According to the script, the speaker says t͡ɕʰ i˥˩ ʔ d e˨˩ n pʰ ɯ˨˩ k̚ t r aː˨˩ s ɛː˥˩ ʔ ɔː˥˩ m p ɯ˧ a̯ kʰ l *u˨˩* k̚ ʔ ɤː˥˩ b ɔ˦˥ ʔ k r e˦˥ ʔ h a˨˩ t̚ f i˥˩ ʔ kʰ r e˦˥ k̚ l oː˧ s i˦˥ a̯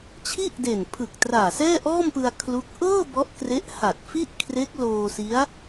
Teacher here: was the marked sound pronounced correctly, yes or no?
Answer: no